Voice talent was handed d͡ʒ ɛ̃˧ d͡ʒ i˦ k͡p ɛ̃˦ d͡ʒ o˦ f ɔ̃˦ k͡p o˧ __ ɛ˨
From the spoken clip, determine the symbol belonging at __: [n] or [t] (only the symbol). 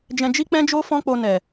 n